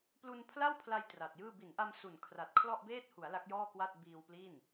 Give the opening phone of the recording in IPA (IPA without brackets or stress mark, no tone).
p